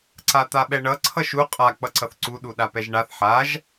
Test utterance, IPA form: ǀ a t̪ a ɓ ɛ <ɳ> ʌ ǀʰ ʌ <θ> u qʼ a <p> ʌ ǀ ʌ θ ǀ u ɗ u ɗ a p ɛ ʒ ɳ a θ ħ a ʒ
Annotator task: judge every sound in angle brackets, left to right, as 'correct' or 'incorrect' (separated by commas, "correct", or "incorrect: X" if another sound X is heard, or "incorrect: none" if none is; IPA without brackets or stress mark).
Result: correct, incorrect: ʃ, incorrect: k͡p